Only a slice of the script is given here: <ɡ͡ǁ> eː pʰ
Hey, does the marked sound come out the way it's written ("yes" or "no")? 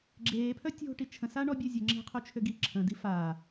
yes